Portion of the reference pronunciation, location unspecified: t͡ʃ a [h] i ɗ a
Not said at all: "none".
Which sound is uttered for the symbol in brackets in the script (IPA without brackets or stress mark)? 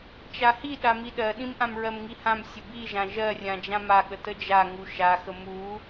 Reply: h